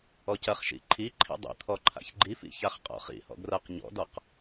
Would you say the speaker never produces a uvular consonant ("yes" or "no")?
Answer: no